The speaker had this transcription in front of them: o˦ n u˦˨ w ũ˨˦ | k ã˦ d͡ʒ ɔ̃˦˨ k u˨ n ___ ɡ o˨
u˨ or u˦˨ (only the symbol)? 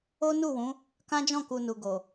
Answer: u˨